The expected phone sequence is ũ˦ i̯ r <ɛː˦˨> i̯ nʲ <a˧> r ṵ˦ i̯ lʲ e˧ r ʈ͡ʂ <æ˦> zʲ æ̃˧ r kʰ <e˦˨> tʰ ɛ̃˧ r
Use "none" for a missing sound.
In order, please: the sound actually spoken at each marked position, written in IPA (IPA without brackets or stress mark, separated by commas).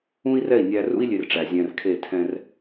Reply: ɛ˦˨, æ˧, æ˨, e˦˨